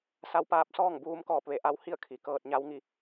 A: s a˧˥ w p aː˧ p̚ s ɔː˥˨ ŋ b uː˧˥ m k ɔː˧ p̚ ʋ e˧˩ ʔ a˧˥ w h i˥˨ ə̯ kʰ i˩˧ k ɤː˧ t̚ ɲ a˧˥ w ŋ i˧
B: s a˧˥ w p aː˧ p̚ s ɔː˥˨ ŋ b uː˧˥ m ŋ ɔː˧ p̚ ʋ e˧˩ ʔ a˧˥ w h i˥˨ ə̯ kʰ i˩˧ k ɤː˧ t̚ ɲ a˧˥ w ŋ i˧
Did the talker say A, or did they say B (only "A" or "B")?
A